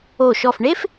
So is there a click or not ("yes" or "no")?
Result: no